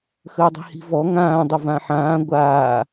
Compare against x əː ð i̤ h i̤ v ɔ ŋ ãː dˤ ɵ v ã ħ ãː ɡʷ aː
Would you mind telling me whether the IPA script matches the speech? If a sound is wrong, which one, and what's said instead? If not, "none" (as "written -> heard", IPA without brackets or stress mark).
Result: ð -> dˤ